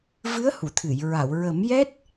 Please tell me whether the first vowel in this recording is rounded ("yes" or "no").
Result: no